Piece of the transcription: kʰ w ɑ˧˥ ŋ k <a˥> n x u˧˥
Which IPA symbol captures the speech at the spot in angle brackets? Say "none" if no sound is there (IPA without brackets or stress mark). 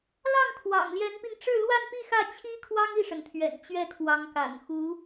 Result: a̰˨˩